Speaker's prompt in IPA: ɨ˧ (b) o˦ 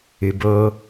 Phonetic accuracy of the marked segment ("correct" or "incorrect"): correct